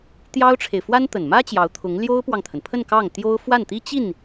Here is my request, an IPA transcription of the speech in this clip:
t̪ j ɑ˥ ʊ̯ ʈ͡ʂʰ e˨ ɪ̯ f w a˥ n t̪ ə˨˩ n m ä˥ t͡ɕ j ɑ˧˥ ʊ̯ t̪ʰ ʊ˧˥ ŋ l j o˥ ʊ̯ p w ɑ˨ ŋ t̪ʰ ə˩ n pʰ ə˥˧ n k ɑ˥˩ ŋ t̪ j o˥ ʊ̯ f w a˥˩ n t̪ i˥ t͡ɕ i˥˩ n

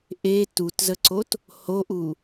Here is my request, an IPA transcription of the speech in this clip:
ʔ e t u t z ə ǀ o t | h o ʔ u

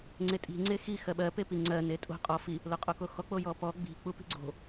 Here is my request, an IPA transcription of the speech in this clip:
ŋ͡ǀ e tʼ i̤ ŋ͡ǀ e x i x ɜ ɓ ɜ p e p i ŋ͡ǀ ɜ n e tʼ o̤ qʼ ɔ f i | l o qʼ o k o x ɔ k͡p o j ɔ p ɔ ɡ͡b i̤ k͡p u p i̤ ɡ͡ǀ o̤

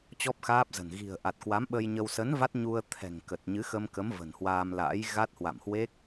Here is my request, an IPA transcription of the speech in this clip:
t͡ɕ ɔ˦˥ p̚ x aː˦˥ p̚ z ə̤˨˩ n ɣ i̤˨˩ ə̯ ʔ a˨˩ t̚ k w a˨˦ m ɓ ə˧ j ɲ ə˧ w s ə˨˦ n v a˦˥ t̚ ɲ u˧ ə̯ t̪ʰ ɛ̤˨˩ ŋ k ə˨˩ t̚ ɲ ɨ˨˦ x ə˧ m k ə˨˦ m v ə̤˨˩ n h w aː˧ m l a̰ː˧˥ j ɣ a˦˥ t̚ h w a̰˧˨ m h w e˦˥ k̚

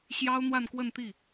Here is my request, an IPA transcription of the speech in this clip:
ɕ j ɑ˥ ʊ̯ n̪ w a˥˧ n k w ə˥˧ n t̪ i˥˩

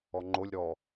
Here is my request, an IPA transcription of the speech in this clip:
ɔ ŋ͡ǃ o lʲ ɾ ɔ

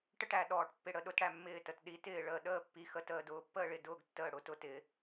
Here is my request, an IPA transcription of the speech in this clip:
ʈ ə˥˨ ʈ æ˩ ɗ ɔː˩ ʈ pː ɪ˧˩ ɽ ə˥˨ ɗ ʊ˥˨ t ɽ æ˧˩ mː ɪː˧˩ t ə˩ t ɗ i˩˥ t ɪː˧˩ ɭ əː˧˩ ɗ əː˥˨ pː i˩˥ x ə˩˧ t əː˧˩ d ʊː˩˥ pː əː˥˨ ɭ ɪ˧˩ d ʊː˥˨ ɡ tː əː˧˩ ɽ ʊ˧˩ t ʊ˥˨ t ɪː˩˧

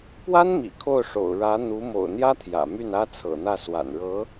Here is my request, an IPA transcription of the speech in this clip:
p w a˥ n m ḭ˨˩ kʰ o˥˩ ʊ̯ ʂ o̰˨˩ ʊ̯ ɻ ä˧˥ n̪ u˧˥ m o̰˨˩ ʊ̯ n̪ j ä˥ t̪ʰ j ä̰˨˩ m y˥˩ n ä˥ t͡sʰ ɤ̰˨˩ n̪ ä˥˩ s w a̰˨˩ n ɻ ɤ˧˥

